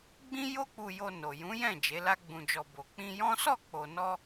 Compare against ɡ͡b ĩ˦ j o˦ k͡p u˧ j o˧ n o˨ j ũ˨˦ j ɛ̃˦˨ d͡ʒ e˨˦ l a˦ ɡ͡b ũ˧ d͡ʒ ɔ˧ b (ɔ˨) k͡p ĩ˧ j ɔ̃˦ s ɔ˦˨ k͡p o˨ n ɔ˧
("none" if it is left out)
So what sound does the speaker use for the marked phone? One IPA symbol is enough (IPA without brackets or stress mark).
o˨